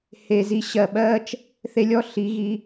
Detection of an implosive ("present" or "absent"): present